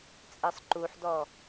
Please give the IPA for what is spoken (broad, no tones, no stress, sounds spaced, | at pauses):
t͡sʼ ɘ sˤ ǃ u ħ d ɔ